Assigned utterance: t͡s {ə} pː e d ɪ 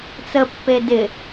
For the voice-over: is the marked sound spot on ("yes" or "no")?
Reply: yes